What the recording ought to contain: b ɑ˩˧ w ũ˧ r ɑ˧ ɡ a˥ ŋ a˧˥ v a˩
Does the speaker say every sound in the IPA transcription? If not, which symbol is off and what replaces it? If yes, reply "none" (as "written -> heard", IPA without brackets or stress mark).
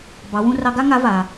none